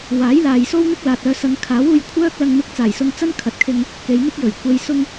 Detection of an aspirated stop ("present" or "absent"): present